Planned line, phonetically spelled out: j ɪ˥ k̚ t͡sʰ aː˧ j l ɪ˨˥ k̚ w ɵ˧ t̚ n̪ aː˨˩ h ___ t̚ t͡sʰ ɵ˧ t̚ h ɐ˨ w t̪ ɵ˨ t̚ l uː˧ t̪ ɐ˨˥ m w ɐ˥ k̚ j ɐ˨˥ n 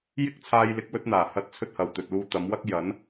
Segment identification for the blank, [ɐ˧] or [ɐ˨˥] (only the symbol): ɐ˨˥